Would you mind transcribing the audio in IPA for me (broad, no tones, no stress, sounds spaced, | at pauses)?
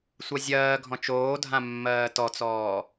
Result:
sʷ ɜ zʲ ɜː ɡʱ ɔ̃ t͡ʃ oː dʱ ã mː ɜː t ɔ t͡s ɔː